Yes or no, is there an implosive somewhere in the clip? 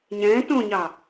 no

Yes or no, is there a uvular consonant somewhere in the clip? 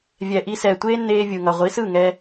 yes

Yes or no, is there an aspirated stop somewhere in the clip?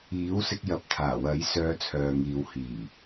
yes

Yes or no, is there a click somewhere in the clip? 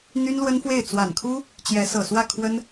no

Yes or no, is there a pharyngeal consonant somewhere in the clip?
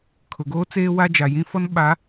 no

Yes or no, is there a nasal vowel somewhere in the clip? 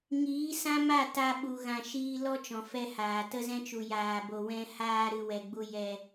yes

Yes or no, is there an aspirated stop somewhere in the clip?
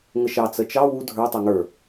no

